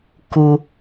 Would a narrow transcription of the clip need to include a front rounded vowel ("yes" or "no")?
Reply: no